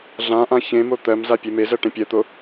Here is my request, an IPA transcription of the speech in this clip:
ɮ ã ʔ ã ç ẽ m o t̪ ɜ m z a pʲ e m e z ɜ ʈ ẽ pʲ ɜ t̪ o

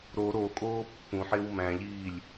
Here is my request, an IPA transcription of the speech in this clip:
ɾ o ɾ o kʼ oː pː ũ ħ e w m æ̃ ʎ iː lʲ

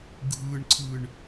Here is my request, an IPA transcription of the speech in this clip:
ɡʱ ɯ ɳ ǀʰ ɯ ɳ

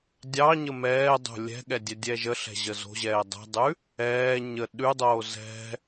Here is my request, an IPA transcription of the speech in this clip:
dʲ ɑ ɲ ə m ɛː dˤ o̤ lʲ ɛ̤ ɠ ɛ dʲ ɛ dʲ ɛː ʒ ə ɬ ɛ̤ ʑ ə z o̤ ʑ ɛː dˤ ɛ̤ dˤ ʉ | ɛː ɲ ə ɗ ʉ dˤ oː z ɛ̤

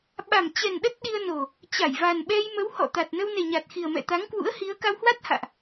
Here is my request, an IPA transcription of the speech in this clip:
ɓ a˨˩ m t͡ɕ ɛ˨˩ n ɗ ə˦˥ t̚ ɗ i˧ ə̯ n o˨˩ | t͡ɕ a˧˩ j v a˨˩ n ɓ ɛ˧ j m ə˨˦ w h ɔ̰˧˨ t̪ a˨˩ t̚ n ə˧ w n e˨˩ ɲ a˨˩ t̚ x i˨˩ ə̯ m ɛ̰˧˨ t̪ a˨˦ ŋ k w ṵ˧˥ ə̯ h i˨˦ ə̯ k a˧ w h w a˦˥ t̚ h a̰ː˧˨ ʔ

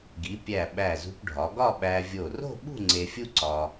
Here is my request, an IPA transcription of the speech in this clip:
ɡ i˩˧ pʲ æ˧˩ ɓ æ˧˩ z ṳ˧ p ɖʱ ɒ˩˧ ɡ ɒ˥˧ ɓ æ˧ vʲ o˧˩ r o̤˥˧ ɓ ṳ˥˧ ŋ͡ǀ e˧ fʲ u˥ ǀ ɒ˧

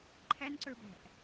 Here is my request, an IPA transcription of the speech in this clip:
ǃʰ æ n ǀ ə˞ b æ̤ ʔ

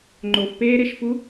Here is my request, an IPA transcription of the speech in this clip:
ŋ͡ǃ o f p eː ɾ e ʃ f u

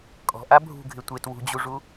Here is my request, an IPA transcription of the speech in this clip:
kʼ ɔ̤ ʔ a bʱ ṳ ɡʱ ɪ tʷ e t w ṳ d͡ʑ u ʐ u

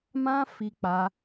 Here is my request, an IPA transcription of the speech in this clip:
m ã˦ f i˧ k͡p a˧

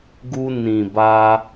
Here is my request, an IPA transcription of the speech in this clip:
ɡ u˧ n ĩ˨ b a˧

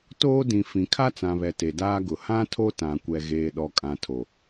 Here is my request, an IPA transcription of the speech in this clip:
t oː˦ d ĩ˨ f ĩ˨ kʰ a˦ t͡s ã˨ β ɛ˨ t e˨ d aː˦ ɡ ʊ˨ h ã˦ tʰ o˦ t ã˨ kʷ ɛ˨ ɣ eː˨ ɗ ɔ˨ kʼ ã˨ tʰ o˨

